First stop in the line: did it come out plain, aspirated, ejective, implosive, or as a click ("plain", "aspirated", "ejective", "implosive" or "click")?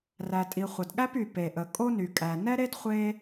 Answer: ejective